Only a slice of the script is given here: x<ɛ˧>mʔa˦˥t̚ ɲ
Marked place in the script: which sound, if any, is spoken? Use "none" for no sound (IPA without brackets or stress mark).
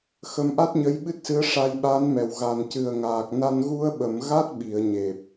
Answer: ə˧